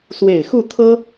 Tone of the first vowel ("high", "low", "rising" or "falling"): low